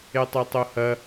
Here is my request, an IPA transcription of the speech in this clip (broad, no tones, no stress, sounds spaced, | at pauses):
e tˤ o tˤ o h ɐ